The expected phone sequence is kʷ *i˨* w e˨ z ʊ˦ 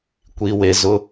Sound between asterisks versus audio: correct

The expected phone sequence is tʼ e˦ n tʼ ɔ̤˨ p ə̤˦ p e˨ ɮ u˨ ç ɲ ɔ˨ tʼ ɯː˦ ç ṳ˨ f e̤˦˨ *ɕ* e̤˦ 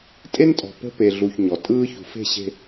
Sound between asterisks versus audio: correct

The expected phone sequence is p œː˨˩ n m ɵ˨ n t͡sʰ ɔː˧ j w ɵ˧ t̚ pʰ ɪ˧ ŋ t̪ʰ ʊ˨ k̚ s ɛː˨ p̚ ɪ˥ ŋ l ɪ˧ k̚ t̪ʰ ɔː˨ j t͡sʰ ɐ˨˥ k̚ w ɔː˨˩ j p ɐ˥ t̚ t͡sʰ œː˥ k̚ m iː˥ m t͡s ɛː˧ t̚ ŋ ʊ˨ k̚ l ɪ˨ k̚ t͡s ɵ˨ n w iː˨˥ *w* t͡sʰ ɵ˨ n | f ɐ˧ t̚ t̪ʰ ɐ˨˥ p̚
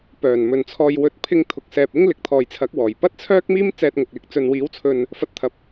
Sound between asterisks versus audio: correct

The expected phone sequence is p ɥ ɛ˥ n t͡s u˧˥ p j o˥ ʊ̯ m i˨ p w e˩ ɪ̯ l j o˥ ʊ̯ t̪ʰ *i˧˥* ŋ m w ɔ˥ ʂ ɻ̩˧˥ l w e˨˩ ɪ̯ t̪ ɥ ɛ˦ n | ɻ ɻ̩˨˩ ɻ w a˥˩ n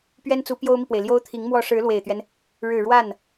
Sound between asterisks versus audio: correct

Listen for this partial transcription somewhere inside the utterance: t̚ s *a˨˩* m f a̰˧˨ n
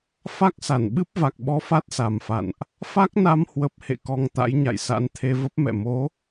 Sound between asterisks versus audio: correct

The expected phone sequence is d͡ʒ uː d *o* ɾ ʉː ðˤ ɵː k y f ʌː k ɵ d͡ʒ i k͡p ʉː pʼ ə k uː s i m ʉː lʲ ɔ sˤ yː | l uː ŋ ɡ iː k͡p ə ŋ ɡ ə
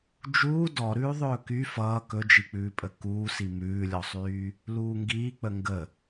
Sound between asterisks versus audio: incorrect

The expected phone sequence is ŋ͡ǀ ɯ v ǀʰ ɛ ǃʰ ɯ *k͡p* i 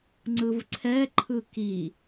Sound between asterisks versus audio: incorrect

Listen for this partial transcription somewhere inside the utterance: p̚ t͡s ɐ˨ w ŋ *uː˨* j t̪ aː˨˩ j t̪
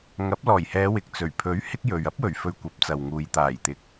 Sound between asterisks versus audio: correct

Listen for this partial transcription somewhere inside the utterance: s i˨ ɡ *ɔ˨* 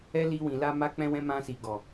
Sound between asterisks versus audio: correct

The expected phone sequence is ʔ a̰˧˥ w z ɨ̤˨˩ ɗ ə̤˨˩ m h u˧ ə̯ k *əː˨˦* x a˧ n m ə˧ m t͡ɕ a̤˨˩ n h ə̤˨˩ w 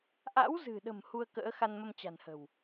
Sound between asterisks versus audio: incorrect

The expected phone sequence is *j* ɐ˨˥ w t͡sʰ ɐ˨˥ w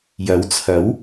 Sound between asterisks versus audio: correct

